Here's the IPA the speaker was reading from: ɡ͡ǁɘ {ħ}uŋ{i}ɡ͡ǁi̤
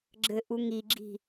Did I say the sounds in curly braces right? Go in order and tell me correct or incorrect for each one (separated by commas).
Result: incorrect, correct